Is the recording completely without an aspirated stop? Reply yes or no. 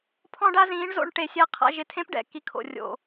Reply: no